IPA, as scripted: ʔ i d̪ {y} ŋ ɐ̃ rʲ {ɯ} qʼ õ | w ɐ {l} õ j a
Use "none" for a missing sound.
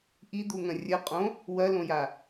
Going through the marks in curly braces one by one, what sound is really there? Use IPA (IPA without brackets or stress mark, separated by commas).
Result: u, ə, l